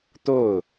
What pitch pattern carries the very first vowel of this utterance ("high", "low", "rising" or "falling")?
falling